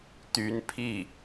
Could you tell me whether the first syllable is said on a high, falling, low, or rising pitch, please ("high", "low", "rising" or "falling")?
rising